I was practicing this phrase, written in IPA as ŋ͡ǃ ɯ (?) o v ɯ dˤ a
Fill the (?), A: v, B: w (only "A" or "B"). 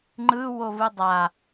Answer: B